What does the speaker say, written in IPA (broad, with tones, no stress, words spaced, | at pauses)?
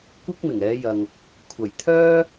kʷɪ˥k̚mɪ˨˩ŋɛː˨˧jɐ˨ŋ | kʷʰɐ˨˩jt̪ʰœː˥